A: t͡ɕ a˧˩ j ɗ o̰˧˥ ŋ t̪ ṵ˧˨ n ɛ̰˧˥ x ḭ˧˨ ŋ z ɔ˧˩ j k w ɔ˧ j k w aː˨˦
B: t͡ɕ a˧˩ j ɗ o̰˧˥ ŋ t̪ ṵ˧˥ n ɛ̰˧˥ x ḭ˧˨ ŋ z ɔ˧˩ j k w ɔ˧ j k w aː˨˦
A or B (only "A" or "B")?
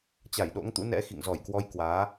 B